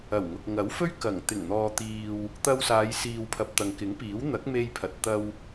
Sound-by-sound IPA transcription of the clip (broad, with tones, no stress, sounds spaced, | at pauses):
ɐ˨˩ w ŋ ʊ˨ k̚ ŋ ɐ˨˥ w f ɵ˥ ɥ k ɐ˨˩ ŋ t̪ ɪ˨˩ ŋ n̪ ɔː˨ t̪ iː˨ w | t̪ ɐ˧ w s aː˨˧ j s iː˨ w pʰ ɐ˨ p̚ t̪ ɐ˨ ŋ k ɪ˨˥ ŋ p iː˨˥ w n̪ ɐ˨˥ k̚ m e˧ j pʰ ɐ˨ t̚ t̪ ɐ˧ w